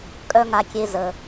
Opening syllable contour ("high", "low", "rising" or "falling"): high